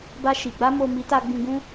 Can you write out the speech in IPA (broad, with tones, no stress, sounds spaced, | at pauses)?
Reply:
b a˧ ʃ i˨ ɡ͡b a˧ m o˨ m i˨˦ t a˧ ɡ͡b ĩ˧ ɡ ũ˦